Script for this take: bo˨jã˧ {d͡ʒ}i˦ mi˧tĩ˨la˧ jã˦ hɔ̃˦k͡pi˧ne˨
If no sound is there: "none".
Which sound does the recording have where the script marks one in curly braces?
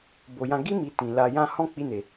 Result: ɡ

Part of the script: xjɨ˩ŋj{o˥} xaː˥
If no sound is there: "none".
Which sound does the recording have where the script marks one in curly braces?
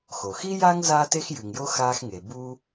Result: o˥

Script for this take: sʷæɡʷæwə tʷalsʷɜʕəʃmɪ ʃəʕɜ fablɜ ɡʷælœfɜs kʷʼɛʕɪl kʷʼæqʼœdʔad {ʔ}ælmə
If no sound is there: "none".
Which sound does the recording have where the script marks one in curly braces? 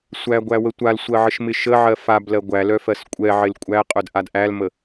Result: ʔ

